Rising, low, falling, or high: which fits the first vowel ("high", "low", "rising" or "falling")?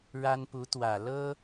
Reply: high